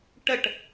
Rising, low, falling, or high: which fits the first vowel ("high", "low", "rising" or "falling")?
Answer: falling